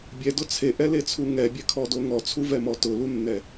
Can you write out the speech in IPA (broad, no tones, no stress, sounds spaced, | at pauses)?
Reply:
bʲ ɛ d ʊ t͡sʰ e ʔ ɛ l e t͡sʰ u ŋ ɛ bʲ ɛ kʰ ɔ d o ŋ ɔ t͡sʰ u v ɛ m ɔ t ʊ l u nː ɛ